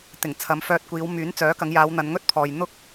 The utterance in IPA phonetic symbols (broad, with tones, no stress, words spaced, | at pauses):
t̪ɪ˨˩ŋt͡sʰɐ˨˧m fœː˧t̚kʷiː˨˧w myː˨˥nt͡sœː˨˥kɐ˨˧ŋjaː˨˧w n̪ɐ˨˧nŋɵ˥t̚pʰɔː˨j n̪ʊ˥k̚